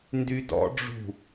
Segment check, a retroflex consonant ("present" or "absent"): present